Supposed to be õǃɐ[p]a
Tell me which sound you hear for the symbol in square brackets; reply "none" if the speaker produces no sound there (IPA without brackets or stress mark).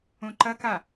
k